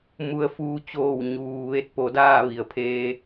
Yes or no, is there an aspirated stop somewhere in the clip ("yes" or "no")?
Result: yes